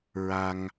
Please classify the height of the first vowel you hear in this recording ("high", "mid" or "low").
low